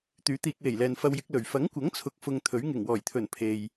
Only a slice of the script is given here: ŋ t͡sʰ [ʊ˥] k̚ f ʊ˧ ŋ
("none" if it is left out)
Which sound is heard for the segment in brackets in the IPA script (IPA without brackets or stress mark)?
ʊ˨